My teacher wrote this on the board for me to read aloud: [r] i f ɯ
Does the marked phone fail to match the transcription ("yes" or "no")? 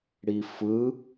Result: yes